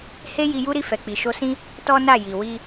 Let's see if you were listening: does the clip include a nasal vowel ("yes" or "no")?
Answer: yes